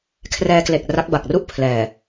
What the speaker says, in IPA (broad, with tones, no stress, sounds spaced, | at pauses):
kʰ r ɛː˧ k l e˨˩ k̚ r a˦˥ k̚ b a˨˩ k̚ r u˥˩ ʔ pʰ l ɛː˨˩